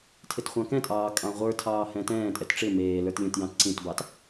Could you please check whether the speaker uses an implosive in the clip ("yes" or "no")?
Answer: no